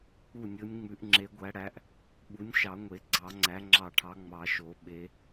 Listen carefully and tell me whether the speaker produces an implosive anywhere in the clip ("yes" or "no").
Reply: yes